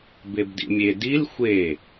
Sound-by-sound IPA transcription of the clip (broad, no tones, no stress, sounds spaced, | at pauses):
b e b d ḭ mʲ e d i l xʷ e